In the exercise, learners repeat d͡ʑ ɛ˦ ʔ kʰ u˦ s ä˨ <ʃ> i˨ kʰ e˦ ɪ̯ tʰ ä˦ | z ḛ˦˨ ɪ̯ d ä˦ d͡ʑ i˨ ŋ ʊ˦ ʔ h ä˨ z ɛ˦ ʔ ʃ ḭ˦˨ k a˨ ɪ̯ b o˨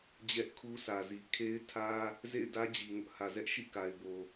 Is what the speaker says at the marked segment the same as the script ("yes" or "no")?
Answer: no